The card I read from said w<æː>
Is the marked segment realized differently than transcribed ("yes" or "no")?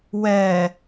yes